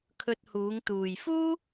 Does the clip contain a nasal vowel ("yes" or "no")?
no